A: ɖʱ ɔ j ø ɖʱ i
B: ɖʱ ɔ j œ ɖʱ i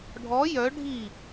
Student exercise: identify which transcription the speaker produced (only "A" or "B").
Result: B